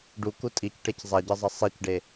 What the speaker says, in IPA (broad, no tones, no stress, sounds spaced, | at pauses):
ɖ u k u tʼ i c ʈ e c zˤ a ɟ ɘ zˤ ʌ sˤ i c ɖ e